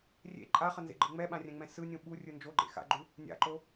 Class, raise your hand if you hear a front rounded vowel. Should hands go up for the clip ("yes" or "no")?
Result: no